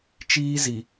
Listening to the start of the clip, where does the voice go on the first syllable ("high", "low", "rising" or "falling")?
high